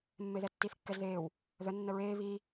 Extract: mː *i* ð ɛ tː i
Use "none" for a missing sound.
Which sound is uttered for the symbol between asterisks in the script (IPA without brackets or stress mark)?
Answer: e